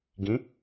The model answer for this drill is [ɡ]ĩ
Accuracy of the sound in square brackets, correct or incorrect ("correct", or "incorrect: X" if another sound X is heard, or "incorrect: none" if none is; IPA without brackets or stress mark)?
correct